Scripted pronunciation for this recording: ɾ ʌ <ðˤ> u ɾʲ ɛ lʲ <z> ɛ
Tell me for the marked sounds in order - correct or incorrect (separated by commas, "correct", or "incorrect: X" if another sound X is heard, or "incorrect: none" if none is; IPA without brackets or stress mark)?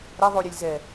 correct, correct